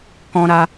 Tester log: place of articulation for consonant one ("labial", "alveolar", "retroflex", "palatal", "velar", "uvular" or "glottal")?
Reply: velar